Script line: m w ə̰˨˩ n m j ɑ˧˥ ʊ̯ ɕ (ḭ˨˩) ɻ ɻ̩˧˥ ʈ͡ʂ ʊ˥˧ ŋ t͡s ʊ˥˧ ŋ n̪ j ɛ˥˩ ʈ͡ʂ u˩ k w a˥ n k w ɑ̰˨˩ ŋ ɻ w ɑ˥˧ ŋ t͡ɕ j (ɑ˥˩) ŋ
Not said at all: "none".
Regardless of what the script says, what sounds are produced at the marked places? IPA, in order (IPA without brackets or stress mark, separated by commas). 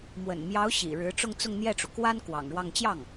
ḭ˨˩, ɑ˥˩